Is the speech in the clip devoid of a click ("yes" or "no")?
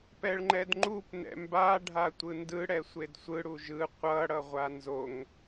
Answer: no